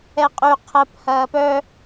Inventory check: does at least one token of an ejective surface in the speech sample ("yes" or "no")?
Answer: yes